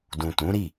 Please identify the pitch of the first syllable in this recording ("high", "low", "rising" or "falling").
low